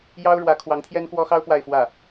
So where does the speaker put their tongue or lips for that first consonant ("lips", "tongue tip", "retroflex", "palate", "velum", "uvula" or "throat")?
palate